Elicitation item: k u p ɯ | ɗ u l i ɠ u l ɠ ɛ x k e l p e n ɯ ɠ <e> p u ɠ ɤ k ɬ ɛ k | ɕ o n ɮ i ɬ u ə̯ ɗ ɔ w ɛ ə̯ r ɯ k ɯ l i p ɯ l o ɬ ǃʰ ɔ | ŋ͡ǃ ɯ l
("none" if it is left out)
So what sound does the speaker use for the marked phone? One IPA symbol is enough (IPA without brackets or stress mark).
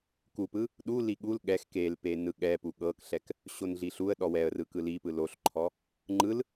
ɛ